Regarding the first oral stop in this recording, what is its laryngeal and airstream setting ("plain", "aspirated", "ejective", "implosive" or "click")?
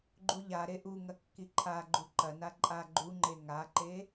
click